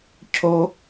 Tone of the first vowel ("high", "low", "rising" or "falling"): high